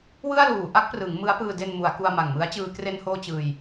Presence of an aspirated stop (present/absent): absent